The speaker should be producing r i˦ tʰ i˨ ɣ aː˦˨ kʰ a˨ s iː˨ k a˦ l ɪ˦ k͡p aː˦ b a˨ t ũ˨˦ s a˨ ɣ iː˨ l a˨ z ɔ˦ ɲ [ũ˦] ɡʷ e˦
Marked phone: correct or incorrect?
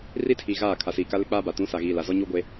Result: incorrect